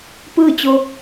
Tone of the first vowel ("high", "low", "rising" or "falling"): falling